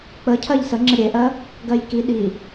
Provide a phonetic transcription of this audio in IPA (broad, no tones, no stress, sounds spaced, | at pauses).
k͡p ə cʰ ɜ ʎ s ə ŋ͡ǁ ə ɾʲ e ʔ ɜ | ɡ ɜ j k i ɗ i